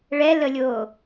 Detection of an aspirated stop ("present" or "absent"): absent